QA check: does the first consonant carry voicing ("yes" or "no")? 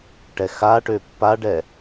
no